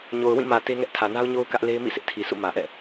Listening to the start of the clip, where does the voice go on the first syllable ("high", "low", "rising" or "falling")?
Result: low